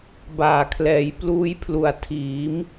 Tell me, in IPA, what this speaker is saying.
baː˨˩kʰlɛː˨˩j pluː˦˥jpʰlu˨˩a̯tʰiː˩˦m

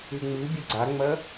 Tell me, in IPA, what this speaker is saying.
ʉŋ͡mɨbʲɘ ɡ͡ǀaŋ͡mɐ

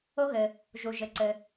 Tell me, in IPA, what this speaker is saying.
o˥ɣɘ˩ | ʒu˩ ʒɘ˩ǀɘ˩

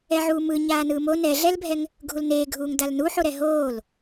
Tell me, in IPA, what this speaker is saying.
ɛʕuːmɯ ɲaːnɯːmo nɛɮɛlbʱɛŋ | ɡʱulneːɡʱuːŋ dalnuħoɾɛ ɦoːl

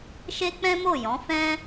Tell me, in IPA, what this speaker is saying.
ʃe˦k͡pɛ̃˦mo˦˨jɔ̃˨˦ fɛ̃˦

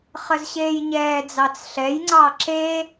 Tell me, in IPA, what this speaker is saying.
χəzɕeːjɲɛːd͡zɑt͡s ɬɛjŋ͡ǀɑ ǁe

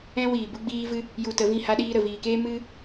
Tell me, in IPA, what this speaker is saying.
ɛ̃˦wiː˨ bu˦ ɡ͡biː˦vɨ˦ | ju˧tə˨˦vĩ˦˨ha˦ ɗiː˧ɾə˨viː˨keː˦ mɨ˦

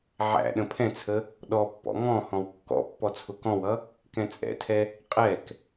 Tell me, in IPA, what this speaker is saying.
ʕæ̰ ɗə̃pʰɛ̃t͡sʰə | ɗɔpːɔ̰ ŋɔ̃ hɔ̃wkːɔ̰pːɔ t͡sʰʊkɔ̃wʌ | kɛ̃t͡sʼɛ̰tʰɛ | qʼɛk

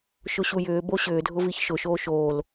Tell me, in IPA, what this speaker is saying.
ʃʊɕujʏː boɕʏːdʱʊ viçʃʊʃoː ʃoːl

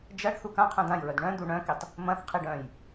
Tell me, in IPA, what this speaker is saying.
d͡ʒɐɖ θukãqʰœ̃ dãjɹœd ɳœ̃ d̪uɳœ̃kitˤ | mɐ̃θqʰiɖ œ̃j

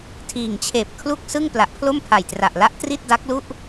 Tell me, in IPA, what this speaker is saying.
tʰiː˨˩ŋt͡ɕʰeː˨˩p̚ kʰlu˥˩k̚sɯ˥˩ŋ pla˨˩ʔpʰlo˥˩mpʰa˨˩jtra˨˩ʔ la˦˥ʔtri˥˩t̚ da˦˥k̚lu˥˩ʔ

